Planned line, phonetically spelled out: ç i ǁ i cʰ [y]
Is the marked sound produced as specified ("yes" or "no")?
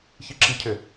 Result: no